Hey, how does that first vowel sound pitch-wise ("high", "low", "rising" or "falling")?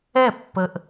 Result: falling